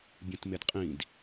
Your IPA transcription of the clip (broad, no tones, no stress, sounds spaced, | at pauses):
bʲ ũ t m e d qʼ ĩ d